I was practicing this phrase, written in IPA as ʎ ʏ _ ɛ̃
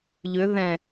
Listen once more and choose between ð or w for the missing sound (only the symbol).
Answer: ð